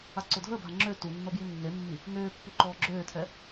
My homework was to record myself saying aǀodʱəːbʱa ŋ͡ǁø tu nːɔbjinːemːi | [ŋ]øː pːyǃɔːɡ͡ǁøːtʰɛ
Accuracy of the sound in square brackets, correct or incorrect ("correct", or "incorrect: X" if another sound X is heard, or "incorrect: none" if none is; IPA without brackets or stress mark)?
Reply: correct